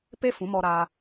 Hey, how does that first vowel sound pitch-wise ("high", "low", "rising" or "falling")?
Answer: high